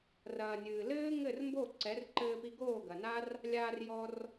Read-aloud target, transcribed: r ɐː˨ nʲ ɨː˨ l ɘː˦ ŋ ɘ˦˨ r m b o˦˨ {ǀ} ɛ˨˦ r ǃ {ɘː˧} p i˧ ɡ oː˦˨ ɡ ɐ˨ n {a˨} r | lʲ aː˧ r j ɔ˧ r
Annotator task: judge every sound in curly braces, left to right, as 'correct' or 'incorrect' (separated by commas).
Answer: correct, correct, incorrect